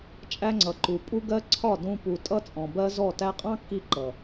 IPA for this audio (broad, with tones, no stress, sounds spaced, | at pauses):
t͡ʃʼ æ˧ ŋ͡ǀ ʌ˨ ǃ u˨ pʼ u˦ ɡ ɜ˦ ǀʰ ɒ˦˨ d ũ˧ p u˨ tʼ ʌ˦ t͡sʼ ɔ̃˨ b ɜ˦ z ɔ˦˨ t æ˧ qʼ ɑ̃˦ kː i˧ ǃ ʌ˨